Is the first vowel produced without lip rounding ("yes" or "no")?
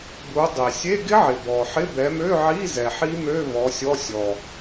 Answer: no